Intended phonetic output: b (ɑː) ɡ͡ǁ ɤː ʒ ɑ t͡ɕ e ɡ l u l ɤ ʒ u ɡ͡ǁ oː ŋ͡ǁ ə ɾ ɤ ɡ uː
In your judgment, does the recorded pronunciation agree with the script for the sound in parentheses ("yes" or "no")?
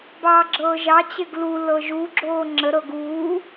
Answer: yes